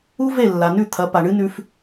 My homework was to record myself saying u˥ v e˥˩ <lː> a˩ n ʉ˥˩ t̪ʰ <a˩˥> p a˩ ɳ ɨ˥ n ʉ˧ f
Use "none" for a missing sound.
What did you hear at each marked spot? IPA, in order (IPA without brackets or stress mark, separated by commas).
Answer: lː, ɐ˩˥